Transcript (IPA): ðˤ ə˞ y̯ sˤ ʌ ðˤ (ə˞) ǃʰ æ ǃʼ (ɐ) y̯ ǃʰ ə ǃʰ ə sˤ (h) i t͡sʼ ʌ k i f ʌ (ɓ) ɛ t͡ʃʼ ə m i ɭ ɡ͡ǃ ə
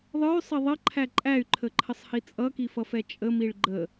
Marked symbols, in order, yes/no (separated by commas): no, no, yes, no